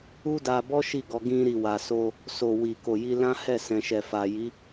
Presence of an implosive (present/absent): absent